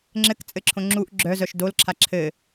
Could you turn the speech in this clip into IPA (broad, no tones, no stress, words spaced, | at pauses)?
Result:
ŋ͡ǁɘkt͡sʼɘǁʰõ ŋ͡ǁuʔ ɡ͡ǁœzœʃ dolǁʰa ǁʰɘ